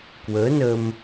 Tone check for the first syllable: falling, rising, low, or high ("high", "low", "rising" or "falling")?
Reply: rising